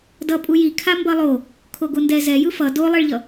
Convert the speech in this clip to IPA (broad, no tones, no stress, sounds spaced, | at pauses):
d ʌ pʼ u j i kʰ a m b ʌ lˠ o | kʰ o ɡ o n d ɛ z ɛ j ɯ f ʌ d o lˠ e ɭ ʎ ʌ